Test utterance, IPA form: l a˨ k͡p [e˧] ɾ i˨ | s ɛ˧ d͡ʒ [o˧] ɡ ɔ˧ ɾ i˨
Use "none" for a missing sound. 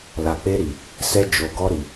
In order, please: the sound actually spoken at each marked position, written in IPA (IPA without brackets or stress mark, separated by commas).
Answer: e˧, o˨